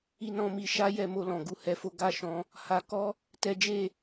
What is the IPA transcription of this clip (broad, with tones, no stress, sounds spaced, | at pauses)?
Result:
i˧ n ɔ̃˧ m i˧ ʃ a˦ j ɛ˧ m o˧ l ɔ̃˨ ɡ u˧ h ɛ˧ f o˦ ɡ a˦˨ ʃ ɔ̃˧ | h a˦ k ɔ˦ | t ɛ˦ d͡ʒ e˦˨